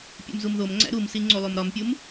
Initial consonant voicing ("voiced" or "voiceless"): voiceless